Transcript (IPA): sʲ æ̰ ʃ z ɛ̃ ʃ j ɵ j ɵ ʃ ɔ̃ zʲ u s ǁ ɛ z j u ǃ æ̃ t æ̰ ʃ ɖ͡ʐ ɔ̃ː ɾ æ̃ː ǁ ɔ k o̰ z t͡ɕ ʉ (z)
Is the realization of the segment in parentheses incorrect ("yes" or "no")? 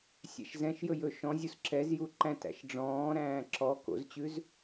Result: no